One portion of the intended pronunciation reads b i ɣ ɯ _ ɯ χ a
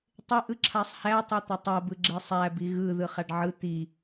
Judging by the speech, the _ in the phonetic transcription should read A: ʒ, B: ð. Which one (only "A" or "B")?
B